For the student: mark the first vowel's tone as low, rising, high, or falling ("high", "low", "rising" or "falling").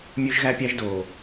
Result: high